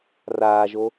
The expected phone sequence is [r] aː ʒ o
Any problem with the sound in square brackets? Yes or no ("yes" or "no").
no